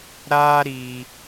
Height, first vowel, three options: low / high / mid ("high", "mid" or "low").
low